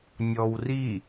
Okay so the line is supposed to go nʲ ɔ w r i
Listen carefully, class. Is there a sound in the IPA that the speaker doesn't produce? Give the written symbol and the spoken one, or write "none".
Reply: none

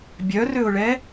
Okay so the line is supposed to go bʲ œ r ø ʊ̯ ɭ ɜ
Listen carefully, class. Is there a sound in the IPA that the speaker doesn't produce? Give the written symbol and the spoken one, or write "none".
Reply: ɜ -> ɛ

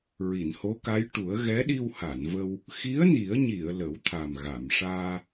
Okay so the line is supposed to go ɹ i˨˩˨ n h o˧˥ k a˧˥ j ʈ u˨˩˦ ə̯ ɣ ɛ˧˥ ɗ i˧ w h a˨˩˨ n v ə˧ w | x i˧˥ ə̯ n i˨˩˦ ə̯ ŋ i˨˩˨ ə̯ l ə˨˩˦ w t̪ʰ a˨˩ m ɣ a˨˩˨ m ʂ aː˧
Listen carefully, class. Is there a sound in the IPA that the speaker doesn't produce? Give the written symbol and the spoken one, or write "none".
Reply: ŋ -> ɲ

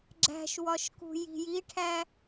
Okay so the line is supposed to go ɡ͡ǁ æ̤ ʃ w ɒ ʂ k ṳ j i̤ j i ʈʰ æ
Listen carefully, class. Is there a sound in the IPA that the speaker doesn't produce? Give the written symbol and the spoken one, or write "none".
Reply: ʂ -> ʃ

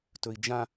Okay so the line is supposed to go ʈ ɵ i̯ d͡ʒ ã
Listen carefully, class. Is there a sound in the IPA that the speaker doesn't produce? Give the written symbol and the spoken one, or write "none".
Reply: ʈ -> t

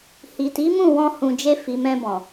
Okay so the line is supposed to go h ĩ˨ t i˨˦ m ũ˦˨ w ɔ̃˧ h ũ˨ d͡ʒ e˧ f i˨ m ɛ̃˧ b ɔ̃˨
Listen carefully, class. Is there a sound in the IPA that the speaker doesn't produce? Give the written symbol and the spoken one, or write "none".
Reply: ĩ˨ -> i˨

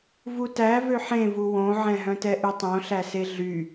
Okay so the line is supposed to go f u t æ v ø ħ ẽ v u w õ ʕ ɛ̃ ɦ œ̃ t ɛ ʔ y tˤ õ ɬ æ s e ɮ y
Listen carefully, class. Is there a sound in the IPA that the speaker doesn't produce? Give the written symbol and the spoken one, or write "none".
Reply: f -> v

